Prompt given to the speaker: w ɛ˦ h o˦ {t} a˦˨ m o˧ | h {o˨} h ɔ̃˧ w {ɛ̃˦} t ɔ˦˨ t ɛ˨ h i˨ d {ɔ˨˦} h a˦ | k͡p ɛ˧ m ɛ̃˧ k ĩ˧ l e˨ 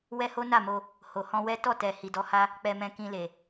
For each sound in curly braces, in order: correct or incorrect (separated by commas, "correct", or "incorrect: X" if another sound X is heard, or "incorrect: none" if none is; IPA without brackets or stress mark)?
incorrect: n, correct, incorrect: ɛ˦, correct